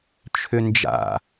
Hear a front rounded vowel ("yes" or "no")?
yes